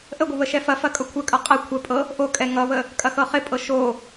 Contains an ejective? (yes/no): yes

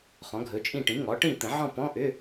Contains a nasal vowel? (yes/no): yes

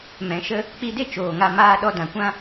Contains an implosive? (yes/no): yes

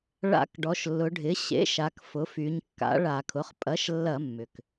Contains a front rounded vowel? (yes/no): yes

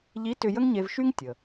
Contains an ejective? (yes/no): no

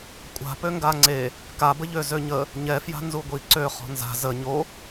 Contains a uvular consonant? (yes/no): yes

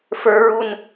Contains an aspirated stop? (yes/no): no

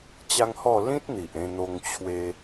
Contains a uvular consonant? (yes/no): no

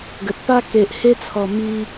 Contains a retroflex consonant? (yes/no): no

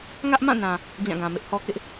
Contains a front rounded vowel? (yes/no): no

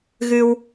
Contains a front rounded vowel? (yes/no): no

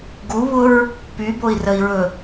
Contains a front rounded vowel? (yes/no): yes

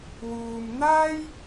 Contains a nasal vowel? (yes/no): no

